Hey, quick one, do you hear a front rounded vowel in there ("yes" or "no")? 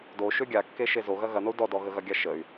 yes